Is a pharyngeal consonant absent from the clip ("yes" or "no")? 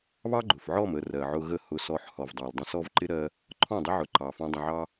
no